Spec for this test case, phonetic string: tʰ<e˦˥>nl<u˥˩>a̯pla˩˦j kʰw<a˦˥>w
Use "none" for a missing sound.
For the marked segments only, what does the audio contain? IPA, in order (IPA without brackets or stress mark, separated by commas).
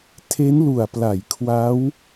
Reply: e˦˥, u˨˩, a˦˥